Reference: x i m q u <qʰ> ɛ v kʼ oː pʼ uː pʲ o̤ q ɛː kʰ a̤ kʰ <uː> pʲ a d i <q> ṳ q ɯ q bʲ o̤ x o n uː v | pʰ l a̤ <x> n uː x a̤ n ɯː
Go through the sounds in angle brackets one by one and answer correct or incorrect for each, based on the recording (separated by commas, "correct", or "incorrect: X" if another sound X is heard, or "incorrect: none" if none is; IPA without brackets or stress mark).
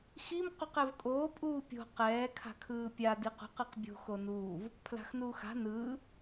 incorrect: q, incorrect: ɯː, correct, correct